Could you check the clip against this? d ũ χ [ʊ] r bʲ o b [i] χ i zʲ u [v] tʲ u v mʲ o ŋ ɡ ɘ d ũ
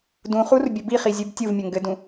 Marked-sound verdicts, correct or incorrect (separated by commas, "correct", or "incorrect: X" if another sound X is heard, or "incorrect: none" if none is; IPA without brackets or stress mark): incorrect: u, correct, incorrect: b